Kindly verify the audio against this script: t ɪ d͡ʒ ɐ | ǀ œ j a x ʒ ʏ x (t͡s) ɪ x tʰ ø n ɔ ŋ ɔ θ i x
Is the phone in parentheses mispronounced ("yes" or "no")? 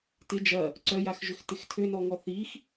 yes